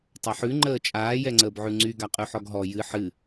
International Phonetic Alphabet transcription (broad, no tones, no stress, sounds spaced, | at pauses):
tˤ ɐ ħ ʉ ŋ͡ǃ əː t͡ʃʼ aː j ɛ ŋ͡ǀ əː b ʕ ʉ ŋ͡ǀ y ɡ a qʼ ʉ ħ ɔ ɡ ɦ ɔ j ɨ ħ ɨ